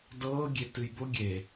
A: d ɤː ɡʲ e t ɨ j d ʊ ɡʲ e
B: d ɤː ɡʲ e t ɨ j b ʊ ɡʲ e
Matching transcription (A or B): B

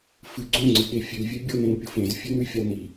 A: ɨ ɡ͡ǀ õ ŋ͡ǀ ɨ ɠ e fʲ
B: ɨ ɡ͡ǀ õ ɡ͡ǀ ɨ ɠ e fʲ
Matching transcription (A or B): A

